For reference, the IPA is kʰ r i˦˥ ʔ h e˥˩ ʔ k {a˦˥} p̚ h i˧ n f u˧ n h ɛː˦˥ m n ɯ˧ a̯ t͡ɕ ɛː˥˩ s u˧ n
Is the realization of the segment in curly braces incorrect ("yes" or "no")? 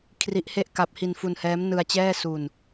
no